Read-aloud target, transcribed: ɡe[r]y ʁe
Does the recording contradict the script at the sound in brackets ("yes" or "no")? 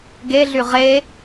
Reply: yes